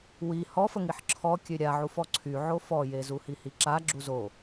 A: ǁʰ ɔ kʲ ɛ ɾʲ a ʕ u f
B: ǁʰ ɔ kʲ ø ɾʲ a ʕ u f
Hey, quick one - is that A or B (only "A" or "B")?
B